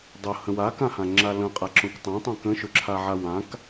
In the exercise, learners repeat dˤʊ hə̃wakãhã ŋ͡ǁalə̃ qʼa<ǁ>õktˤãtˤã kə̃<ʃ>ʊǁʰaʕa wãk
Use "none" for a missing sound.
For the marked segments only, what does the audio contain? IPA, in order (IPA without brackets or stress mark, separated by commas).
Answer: ǁ, ʃ